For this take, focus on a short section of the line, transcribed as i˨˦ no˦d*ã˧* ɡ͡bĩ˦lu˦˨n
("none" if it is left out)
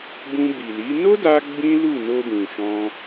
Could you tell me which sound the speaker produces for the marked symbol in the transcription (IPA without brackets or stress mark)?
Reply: a˧